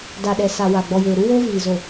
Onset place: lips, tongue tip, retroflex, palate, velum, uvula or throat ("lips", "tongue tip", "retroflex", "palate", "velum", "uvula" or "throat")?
tongue tip